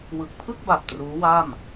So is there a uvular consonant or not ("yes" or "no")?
no